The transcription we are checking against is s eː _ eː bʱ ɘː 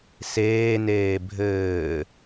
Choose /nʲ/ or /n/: n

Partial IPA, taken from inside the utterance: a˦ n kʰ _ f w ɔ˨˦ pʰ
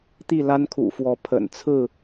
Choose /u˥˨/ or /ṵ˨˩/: ṵ˨˩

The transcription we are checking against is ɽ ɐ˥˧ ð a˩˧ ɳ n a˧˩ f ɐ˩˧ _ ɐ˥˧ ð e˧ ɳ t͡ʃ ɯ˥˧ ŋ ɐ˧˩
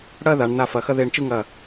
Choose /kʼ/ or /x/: x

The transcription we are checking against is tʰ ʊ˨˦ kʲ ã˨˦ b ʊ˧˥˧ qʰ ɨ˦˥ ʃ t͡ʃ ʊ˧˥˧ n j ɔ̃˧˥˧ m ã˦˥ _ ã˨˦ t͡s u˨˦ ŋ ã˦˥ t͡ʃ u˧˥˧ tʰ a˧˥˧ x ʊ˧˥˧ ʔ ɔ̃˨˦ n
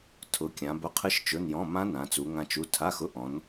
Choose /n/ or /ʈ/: n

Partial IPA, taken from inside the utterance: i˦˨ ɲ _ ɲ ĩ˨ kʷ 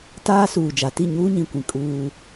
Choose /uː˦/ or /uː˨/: uː˦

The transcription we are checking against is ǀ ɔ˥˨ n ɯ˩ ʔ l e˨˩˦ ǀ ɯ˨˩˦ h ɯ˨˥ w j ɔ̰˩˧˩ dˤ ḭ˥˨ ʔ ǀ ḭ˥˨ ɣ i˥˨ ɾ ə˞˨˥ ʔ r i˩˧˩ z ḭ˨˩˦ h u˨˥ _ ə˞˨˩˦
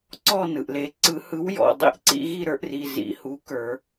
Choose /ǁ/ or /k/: k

